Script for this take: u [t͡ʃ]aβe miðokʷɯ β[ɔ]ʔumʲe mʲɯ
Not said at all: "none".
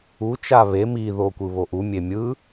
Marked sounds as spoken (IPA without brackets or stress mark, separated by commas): t͡ʃ, o